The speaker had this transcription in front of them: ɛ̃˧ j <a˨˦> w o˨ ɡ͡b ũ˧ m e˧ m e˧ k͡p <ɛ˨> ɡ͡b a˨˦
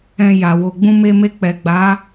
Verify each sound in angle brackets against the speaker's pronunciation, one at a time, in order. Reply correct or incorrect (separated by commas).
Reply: incorrect, correct